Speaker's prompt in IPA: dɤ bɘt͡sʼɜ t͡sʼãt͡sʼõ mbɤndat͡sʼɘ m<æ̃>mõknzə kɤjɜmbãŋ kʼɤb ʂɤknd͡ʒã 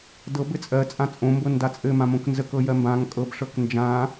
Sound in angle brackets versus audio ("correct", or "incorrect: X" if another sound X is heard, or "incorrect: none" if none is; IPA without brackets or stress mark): incorrect: ã